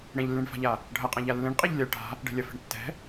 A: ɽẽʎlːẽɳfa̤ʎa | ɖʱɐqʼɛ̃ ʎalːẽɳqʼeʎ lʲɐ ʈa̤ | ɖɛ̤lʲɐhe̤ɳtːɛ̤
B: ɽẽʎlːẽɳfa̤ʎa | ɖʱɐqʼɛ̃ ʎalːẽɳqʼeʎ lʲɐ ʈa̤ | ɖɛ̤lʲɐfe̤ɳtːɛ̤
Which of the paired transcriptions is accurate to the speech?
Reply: B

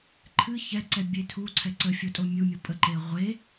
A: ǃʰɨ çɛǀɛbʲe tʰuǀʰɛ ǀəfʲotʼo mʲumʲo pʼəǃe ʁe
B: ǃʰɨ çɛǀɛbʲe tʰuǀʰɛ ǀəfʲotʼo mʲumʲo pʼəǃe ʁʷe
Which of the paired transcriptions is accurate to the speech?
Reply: B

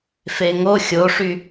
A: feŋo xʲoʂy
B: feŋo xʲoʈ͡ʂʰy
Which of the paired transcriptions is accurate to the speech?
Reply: A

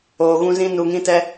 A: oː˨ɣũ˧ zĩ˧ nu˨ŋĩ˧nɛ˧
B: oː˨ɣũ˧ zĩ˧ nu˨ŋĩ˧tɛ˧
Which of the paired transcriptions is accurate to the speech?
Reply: B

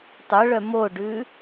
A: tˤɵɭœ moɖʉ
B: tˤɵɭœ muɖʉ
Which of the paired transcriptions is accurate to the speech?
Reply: A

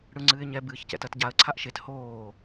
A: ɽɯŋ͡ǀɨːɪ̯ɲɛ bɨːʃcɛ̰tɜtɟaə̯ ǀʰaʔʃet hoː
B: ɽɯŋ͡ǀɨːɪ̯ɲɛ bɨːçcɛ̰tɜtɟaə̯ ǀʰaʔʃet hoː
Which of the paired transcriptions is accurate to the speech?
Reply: B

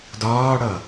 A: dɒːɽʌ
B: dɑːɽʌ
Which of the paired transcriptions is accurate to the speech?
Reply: A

